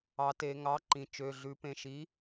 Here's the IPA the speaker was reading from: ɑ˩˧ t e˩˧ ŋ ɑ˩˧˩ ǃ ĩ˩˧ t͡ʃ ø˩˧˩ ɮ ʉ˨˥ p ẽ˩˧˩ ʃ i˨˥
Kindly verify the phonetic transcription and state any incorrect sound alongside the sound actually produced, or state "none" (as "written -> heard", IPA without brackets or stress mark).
none